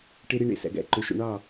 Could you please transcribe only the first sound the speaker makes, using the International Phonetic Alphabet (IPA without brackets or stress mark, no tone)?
ʈ